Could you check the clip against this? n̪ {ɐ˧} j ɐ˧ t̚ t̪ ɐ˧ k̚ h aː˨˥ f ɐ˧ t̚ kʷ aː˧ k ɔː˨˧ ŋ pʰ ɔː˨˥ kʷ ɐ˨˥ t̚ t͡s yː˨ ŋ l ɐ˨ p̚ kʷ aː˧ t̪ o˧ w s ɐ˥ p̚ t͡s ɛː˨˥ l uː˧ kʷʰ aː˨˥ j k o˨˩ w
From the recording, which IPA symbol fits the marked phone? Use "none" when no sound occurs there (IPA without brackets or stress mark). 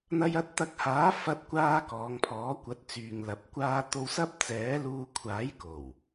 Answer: ɐ˧